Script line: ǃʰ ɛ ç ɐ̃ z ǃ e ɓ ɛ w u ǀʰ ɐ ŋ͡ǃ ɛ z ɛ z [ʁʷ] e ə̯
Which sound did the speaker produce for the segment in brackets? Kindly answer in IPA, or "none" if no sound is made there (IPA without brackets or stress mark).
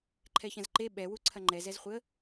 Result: χʷ